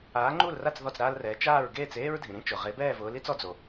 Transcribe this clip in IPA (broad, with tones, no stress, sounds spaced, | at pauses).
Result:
aː˨˥ ŋ͡ǃ u˥˨ l r a˥˨ t͡s ð ɔ˥˨ t͡s ɾ aː˥ l r ɛː˨˥ t͡ʃ aː˥˨ ɹ ɡ eː˥˨ t͡s eː˥ ɹ dʱ ĩ˩ ɾ ĩ˥ t͡ʃ ʊ˩ ʁ e˨˥ b ɛː˥˨ v ʊː˨˥ l i˥ t͡s ɔ˨˥ d͡z o˩